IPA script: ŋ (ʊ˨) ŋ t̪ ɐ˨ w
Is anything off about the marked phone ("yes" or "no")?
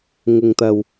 no